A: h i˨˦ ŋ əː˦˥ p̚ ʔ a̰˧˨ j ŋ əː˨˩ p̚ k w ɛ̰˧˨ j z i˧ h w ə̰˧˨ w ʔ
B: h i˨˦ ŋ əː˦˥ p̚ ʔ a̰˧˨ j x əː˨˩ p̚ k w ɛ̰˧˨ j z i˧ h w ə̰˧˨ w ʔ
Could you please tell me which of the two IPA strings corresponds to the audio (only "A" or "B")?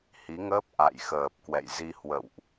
B